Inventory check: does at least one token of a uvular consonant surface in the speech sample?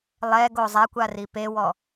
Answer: no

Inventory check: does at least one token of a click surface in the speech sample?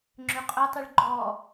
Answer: yes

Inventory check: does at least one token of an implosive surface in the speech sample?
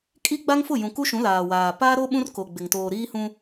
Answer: yes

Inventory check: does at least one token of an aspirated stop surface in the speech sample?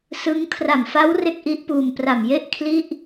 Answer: yes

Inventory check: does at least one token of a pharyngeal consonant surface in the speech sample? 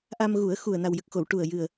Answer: no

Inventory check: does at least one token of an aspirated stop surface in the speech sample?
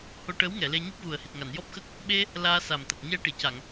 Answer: no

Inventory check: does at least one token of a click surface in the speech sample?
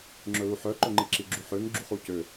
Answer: yes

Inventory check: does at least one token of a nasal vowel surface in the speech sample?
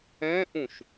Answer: yes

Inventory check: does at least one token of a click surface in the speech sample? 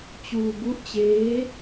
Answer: no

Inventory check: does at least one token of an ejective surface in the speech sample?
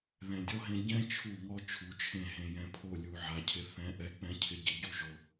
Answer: no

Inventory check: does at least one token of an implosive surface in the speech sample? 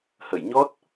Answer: no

